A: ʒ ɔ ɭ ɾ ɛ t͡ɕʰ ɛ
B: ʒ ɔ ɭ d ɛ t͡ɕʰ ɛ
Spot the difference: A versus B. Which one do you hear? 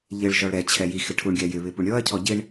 A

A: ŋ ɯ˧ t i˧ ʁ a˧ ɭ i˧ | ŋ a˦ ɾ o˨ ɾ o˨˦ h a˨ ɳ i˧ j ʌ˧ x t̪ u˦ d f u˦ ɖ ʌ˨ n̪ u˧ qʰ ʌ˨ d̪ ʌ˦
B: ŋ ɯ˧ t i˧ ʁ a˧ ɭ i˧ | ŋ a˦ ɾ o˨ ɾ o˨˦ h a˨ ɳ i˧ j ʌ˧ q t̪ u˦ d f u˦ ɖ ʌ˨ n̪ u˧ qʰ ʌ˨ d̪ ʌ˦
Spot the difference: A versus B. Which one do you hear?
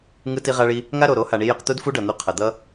B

